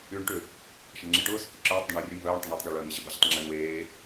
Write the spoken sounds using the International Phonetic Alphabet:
yː ɳ ʈ ʏ | ʃ ɐ ɳ ŋ͡ǁ e ʈ ʊː s ʏ k i ǁ œː tˤ d ʏ ɳ œː rʲ ø m v œː ɳ tˤ ɪ ɳ ʊː tˤ ɡ ɔ ɭ œː ŋ ɐ ʑ ɪ b ɐ ʑ ʏ tˤ ŋ͡ǁ e ɳ w eː

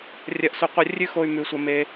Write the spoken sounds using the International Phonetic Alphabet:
rʲ ɐ˧ ʔ s ɵ˧ qʷ ɐ˦ rʲ ʉ˦ x o˧ y̯ m ʉ˨˦ sʷ ɐ˧ m e˧

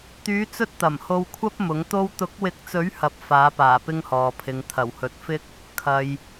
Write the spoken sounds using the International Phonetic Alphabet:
t̪ yː˨˧ t͡s ɵ˥ t̚ t̪ ɐ˨˩ m h o˧ w kʷʰ ɐ˥ p̚ m ʊ˨˥ ŋ t̪ o˥ w t̪ ʊ˨˥ k̚ w ɪ˨˥ k̚ t͡s ɵ˨˥ ɥ h ɐ˨ p̚ f aː˨˥ p aː˨˩ p ɪ˥ ŋ h ɔː˨ pʰ ɪ˨˧ ŋ t̪ʰ ɐ˨˩ w h ɵ˨ t̚ f ɪ˥ k̚ | kʰ ɐ˨ j

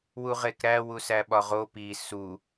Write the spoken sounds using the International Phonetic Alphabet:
w u ʁ e k ɾ æ w u s æ ɓ ɒ ʁ o p i s u

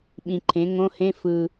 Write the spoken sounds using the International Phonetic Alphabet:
ɓ ĩ˨ ǃʰ ẽ˩˥ ŋ õ˧˥˧ h ẽ˧˥˧ f ɯ˨

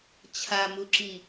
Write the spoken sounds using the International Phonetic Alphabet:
t͡ɕʰ a m u ǁ i

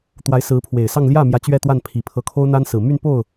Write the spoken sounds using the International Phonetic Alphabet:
t̪ w a˧˥ ɪ̯ s ɹ̩˧˥ pʰ w e˨˩ ɪ̯ s ɑ˥˧ ŋ l j ä˥˩ m j ä˧˥ t͡ɕ ɥ ɛ˥˧ t̪ w a˥˩ n pʰ i˨˩ pʰ ɤ˧˥ kʰ o˥ ʊ̯ n̪ a˥ n s ɹ̩˨˩ m y˥˧ n p o˥˩ ʊ̯

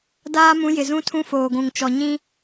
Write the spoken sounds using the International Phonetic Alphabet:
d aː˦ m ũ˨˦ j ɪ˨ z ũ˦ tʰ ũ˦ f oː˨ ɡʷ ũ˨ ŋ t͡ʃ ɔ˨ ɲ ĩ˦

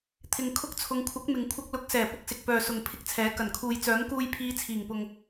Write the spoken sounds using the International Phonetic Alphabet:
t̪ʰ ɪ˨ ŋ kʰ ʊ˧ k̚ t͡sʰ ʊ˨˧ ŋ kʷʰ ɐ˨˥ k̚ m ɪ˨ ŋ kʷʰ ɐ˧ k̚ l ʊ˨˥ k̚ s ɛː˨˩ p ʊ˧ k̚ s ɪ˨ k̚ p œː˨ s ʊ˨ ŋ pʰ ɪ˧ k̚ t͡sʰ ɛː˨˥ k ɐ˨˩ n kʰ uː˨ j t͡s œː˨˥ ŋ k uː˧ j pʰ iː˨˧ t͡sʰ iː˨˩ ŋ p ʊ˨ ŋ

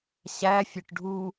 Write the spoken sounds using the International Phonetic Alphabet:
ɕ æ fʲ ø ʈ ɖʱ u

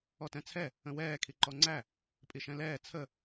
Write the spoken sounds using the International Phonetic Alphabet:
ɔ t ɛ̃ t͡sʰ ɛ | ə̃ w ɛː kʰ i ǃ ɔ ŋ͡ǀ æ | pʼ i ʃ ɛ̃ l ɛː t͡sʰ ə

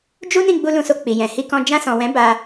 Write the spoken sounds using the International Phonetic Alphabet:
d͡ʒ u˦ n ĩ˦˨ ɡ͡b u˧ l ũ˧ s o˧ k͡p i˨ j ɛ̃˨ h i˧ k ɔ̃˧ d͡ʒ ã˧ s ɔ̃˨ w ɛ̃˨˦ b a˧

